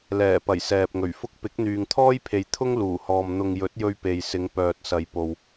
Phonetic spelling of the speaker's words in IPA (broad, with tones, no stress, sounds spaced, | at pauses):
l ɛː˨˩ p ɐ˨˩ j s ɛː˨ p̚ ŋ ɵ˨˩ ɥ f ʊ˥ k̚ p ɪ˨˥ k̚ n̪ yː˨ ŋ t̪ʰ ɔː˥ j pʰ e˨ j t̪ʰ ʊ˥ ŋ l uː˨˩ h ɔː˨ m n̪ ʊ˨ ŋ j ɵ˨˥ t̚ j ɵ˧ ɥ p e˨ j s ɪ˨˧ ŋ p œː˨ t̚ s ɐ˨ j p o˨ w